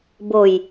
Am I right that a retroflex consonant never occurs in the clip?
yes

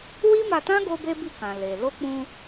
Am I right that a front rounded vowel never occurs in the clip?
yes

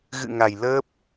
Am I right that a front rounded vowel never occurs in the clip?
yes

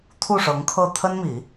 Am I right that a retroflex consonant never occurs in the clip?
no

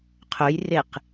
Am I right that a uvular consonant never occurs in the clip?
no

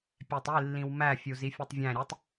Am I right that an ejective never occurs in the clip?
yes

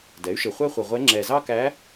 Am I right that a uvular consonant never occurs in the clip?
no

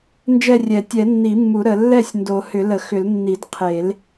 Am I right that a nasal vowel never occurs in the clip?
yes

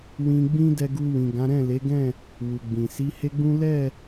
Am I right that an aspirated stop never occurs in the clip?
yes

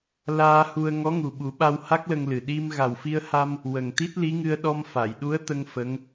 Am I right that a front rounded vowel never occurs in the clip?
yes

